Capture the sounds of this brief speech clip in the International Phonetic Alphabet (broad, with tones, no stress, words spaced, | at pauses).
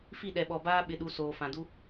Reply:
fi˦˨ɗɛ˨ɓɔ˨baː˦ ɓɪ˦ɗu˦ soː˨ fã˨du˦